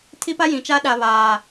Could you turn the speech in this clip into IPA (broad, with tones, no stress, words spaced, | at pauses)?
tʰi˦pa˦jĩ˨t͡ʃa˦ ɗa˨ βaː˨